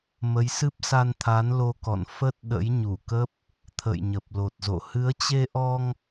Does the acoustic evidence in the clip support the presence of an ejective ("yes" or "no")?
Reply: no